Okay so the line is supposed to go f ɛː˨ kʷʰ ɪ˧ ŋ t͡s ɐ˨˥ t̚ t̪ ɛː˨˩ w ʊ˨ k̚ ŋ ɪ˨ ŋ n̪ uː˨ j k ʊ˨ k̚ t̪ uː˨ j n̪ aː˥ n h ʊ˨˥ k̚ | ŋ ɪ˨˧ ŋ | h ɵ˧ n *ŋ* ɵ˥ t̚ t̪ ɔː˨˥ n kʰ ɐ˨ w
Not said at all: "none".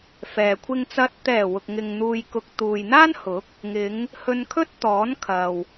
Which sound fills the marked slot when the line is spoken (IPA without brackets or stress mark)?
kʰ